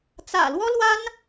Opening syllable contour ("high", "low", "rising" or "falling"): low